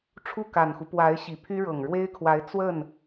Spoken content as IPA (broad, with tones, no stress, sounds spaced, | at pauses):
ʈ͡ʂʰ u˥˩ k a˨˩ n x u˦ p w a˧˥ ɪ̯ ɕ i˨˩ pʰ y˥ ɻ ɤ˨˩ ŋ ɻ w e˥ ɪ̯ kʰ w a˧˥ ɪ̯ t͡s w ə˥˩ n